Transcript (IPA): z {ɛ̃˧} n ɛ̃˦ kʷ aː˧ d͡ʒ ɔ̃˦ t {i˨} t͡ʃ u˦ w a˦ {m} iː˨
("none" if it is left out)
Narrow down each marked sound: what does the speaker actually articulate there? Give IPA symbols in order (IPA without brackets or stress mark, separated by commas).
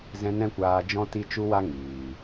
ɛ̃˦, i˦, ŋ